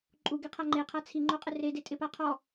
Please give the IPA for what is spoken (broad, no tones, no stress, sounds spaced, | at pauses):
ǃʼ u ɡ e qʰ a ŋ͡ǃ e qʰ a t͡sʰ i ŋ͡ǃ o qʼ ɪ r e d e tʼ ɪ p a qʰ ɔ